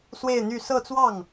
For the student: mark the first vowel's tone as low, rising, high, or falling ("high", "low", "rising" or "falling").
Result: falling